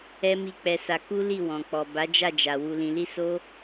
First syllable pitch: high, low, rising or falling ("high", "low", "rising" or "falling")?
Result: high